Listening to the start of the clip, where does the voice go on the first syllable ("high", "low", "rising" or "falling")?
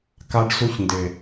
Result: high